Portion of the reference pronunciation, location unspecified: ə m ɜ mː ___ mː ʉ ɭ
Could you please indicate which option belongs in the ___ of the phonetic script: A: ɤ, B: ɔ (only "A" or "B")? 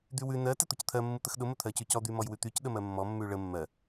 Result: B